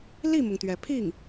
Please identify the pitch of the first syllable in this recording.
falling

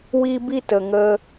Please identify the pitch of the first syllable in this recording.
high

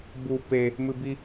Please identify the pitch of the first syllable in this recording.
low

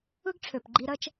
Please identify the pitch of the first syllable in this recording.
high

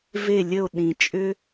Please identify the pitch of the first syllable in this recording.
falling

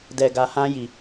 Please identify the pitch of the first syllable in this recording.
low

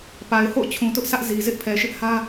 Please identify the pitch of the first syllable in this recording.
low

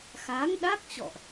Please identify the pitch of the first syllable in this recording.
rising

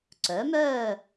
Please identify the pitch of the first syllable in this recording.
rising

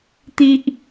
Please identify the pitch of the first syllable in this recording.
high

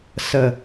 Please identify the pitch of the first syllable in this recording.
falling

